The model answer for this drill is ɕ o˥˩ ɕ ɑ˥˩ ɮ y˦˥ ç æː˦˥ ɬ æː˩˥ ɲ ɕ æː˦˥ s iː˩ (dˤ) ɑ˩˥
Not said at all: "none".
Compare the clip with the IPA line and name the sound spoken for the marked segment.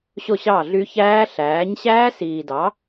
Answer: d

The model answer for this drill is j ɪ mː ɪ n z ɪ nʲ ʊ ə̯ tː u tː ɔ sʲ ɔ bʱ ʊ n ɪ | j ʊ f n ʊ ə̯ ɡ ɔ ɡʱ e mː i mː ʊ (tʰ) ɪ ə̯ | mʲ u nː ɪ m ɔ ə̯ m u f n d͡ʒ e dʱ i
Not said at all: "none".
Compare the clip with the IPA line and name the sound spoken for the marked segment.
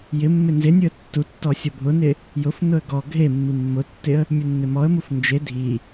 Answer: tː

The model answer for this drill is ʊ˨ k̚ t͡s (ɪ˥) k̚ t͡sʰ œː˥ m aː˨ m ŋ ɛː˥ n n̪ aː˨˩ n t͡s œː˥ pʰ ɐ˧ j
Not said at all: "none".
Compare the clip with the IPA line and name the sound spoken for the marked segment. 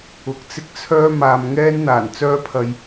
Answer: ɪ˥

